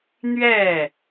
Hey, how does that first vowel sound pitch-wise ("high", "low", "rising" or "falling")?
falling